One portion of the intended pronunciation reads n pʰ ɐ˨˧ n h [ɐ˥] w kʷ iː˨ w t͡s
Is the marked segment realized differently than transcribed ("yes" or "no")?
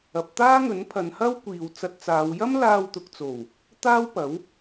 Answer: no